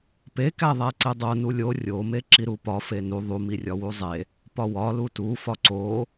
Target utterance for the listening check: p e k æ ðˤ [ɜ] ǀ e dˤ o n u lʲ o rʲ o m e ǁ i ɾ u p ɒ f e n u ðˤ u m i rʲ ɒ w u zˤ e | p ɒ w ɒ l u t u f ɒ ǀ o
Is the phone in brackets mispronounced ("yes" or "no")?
yes